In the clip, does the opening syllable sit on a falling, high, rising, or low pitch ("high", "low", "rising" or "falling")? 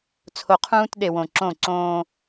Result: low